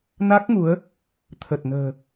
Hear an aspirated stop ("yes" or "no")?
yes